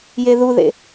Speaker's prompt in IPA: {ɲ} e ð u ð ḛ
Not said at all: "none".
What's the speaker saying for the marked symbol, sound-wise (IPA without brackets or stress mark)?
j